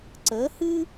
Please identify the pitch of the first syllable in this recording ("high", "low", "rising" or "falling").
rising